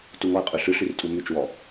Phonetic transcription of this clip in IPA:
t u ŋ ɔ ə̯ qʼ ʉ ɬ ʉ ɬ y r tʼ u m y t͡ʃ w ɔ

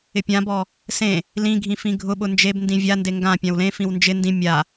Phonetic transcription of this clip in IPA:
ɪ pʲ ã b ɔ | s ẽ | l ĩ ɡʱ ĩ f ĩ ɡʱ ʊ ɓ ʊ n d͡ʒ e b n d ĩ vʲ a n d e ŋ ɡ ã pʲ ã w l ẽ f ĩ w n d͡ʒ ɪ n d ĩ mʲ a

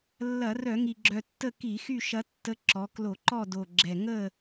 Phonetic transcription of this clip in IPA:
lː ɐ˧˩˧ r œ˧˩˧ ŋ i˨˩ ɡ͡ǁ œ˨˩ tː ə˥˨ k i˧˩˧ x y˥˨ ʃ ɐ˨˥ tː ə˨˥ ǁ ɔ˩˧ k l o˧˩˧ ǃ ɔ˥˨ d o˨˩ ɡ͡ǁ ɛ˨˩ ŋ ə˥˨

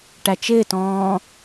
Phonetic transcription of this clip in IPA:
ʈ æ t͡ʃ ɪː t ɔ̃ː

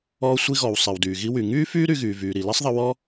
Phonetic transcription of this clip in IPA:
ɔː˧ sʷ i˧ ɣ ɔ˩ w sˤ i˩ w d yː˩ ɣ i˧ w y˩ ŋ yː˥ f yː˥ ɾ y˧ ɣ yː˩ v yː˩ ɾ i˩ l ɛ˥ sˤ ðˤ ə˧ w ɔ˥

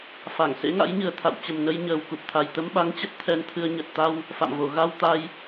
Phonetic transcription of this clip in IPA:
f a˧˩ ŋ s ḛ˧˥ ŋ a̰˧˥ j ɲ ɨ˨˩ ə̯ t̪ʰ a̰˧˨ w t͡ɕ ə˨˩ m n ə˧ j ɲ əː˨˩ w k u˨˩ p̚ t̪ʰ a˨˩ j t̪ ə˧ m ɓ a˨˦ ŋ t͡ɕ ə˦˥ t̚ t̪ʰ ɛ˧ n t̪ʰ ɨ˧ ə̯ ɲ ə˨˩ t̚ t̪ a˧ w | f a̰˧˨ m v o˧˩ ɣ a˧ w t̪ a˧ j

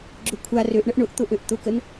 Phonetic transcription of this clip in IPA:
ɡ͡ǁ ʊ kʷʰ a r ø ʔ ɳ ə ʔ ɳ ʊ ʔ t̪ ʊ ʔ ø ʔ t̪ ʊ k ə n

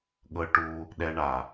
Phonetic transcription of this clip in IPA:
ɠ ɤ˧ ʈ u˧ | ɗ ɛ˧ ɳ a˨

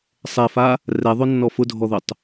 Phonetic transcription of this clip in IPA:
sˤ ɛ f a | r ɛ ðˤ ʊ nː ɔ f ʊ dʱ ɔ ð ʊ tˤ

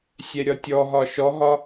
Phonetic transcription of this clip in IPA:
sʲ ɛ ɾʲ ɒ tʲ ɔ ɦ ɒ ʃ ɔ ɦ ɒ

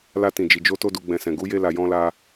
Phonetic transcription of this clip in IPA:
l a˧ t ĩ˨ d͡ʒ i˨ d͡ʒ o˧ t o˧ d u˨ ɡ͡b ɛ̃˨ s ɛ̃˨ ɡ u˨˦ j e˧ l a˨ j ɔ̃˧ l a˧

